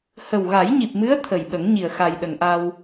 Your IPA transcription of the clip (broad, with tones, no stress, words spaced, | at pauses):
hə˨˩wɣa˨˩˦jɲi˨˩p̚mɨ˧˥ə̯ t̪ʰə˨˩jɓə˨˩˦ŋɲi˨˩ə̯ xa˨˩jɗə˨˩˨ŋʔa˧w